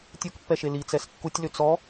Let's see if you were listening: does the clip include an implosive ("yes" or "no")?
no